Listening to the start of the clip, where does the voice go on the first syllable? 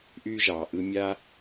high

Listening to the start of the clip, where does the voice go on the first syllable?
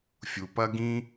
low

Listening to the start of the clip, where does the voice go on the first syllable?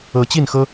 rising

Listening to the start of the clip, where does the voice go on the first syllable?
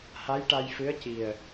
rising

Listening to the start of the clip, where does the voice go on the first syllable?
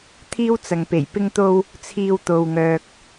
high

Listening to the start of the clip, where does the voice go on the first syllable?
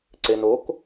low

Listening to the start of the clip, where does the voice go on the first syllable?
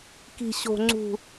low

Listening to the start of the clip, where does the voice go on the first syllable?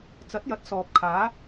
rising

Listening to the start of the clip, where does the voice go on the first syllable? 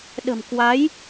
low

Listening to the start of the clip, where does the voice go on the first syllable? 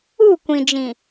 falling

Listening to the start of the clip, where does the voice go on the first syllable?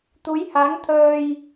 rising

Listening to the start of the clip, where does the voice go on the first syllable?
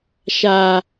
low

